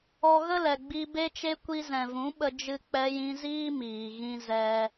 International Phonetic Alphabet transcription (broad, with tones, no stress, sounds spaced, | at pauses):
ɔ˧ ɣ ə˦ l ɛ˨ ɡ͡b i˧ b e˦ t͡ʃ e˦ kʷ i˧ z ɛ̃˨ v ũ˨˦ ɓ ə˧ d͡ʒ ɨ˧ k͡p ɛ˧ j ĩ˧ z iː˦ m iː˨ ɣ ĩ˧ z ɛ˧